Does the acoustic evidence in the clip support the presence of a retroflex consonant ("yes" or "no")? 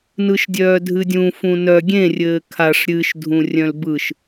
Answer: yes